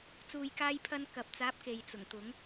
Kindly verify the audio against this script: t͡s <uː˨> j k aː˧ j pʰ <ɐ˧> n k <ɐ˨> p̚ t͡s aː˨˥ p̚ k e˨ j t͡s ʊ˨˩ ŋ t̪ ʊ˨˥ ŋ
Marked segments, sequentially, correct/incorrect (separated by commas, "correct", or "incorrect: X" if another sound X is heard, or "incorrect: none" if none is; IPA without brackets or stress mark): correct, correct, correct